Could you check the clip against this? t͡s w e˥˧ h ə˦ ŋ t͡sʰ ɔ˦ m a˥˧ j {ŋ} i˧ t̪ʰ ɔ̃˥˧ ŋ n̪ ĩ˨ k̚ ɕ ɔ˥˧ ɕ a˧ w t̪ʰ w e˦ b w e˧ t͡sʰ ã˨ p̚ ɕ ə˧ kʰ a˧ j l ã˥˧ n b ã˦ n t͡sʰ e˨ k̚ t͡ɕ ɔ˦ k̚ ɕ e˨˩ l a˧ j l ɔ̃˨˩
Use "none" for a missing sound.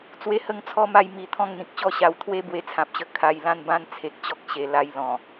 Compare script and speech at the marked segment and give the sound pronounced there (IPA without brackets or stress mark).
m